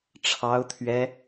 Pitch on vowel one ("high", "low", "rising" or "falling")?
high